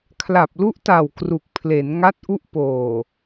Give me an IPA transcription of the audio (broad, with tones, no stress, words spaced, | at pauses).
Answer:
kʰla˨˩p̚lu˦˥ʔta˨˩w kru˨˩k̚pʰle˩˦n ŋa˦˥t̚ʔu˦˥ʔ poː˨˩